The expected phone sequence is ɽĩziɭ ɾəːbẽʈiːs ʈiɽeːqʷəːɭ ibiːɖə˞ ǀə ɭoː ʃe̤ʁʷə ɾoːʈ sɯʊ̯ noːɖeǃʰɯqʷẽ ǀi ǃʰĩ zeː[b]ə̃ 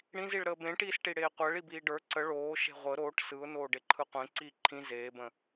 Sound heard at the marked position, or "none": b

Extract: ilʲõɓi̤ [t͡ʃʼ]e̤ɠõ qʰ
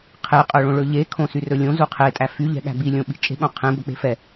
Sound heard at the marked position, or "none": t͡ʃʼ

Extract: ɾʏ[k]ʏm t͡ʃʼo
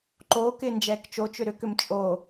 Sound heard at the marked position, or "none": k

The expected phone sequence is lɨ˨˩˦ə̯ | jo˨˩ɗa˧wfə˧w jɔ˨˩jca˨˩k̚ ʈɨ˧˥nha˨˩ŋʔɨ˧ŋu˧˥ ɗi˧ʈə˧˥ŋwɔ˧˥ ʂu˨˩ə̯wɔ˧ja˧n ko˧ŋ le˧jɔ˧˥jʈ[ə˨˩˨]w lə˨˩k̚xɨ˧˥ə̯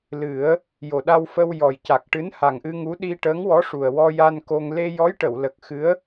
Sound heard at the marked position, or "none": ə˨˩˨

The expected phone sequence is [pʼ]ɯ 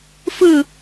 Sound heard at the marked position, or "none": f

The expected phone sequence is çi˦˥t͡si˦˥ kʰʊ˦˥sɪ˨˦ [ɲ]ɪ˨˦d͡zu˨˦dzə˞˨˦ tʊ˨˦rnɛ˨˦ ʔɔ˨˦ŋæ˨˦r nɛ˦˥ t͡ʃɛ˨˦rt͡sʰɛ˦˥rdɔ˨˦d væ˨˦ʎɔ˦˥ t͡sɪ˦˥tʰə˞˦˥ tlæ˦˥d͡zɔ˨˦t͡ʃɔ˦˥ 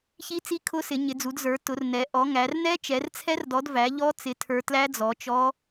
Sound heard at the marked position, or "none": ɲ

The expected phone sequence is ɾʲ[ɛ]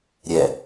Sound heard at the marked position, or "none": ɛ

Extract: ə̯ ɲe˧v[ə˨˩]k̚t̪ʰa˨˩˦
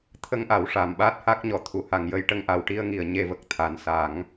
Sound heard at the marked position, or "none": ə˨˩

